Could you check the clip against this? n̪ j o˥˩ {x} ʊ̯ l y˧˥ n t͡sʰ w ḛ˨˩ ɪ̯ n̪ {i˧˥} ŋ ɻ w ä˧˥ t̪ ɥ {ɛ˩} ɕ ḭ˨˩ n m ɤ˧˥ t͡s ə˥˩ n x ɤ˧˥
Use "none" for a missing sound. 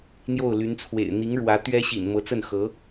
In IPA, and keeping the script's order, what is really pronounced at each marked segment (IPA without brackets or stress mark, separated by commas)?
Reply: none, i˧˥, ɛ˥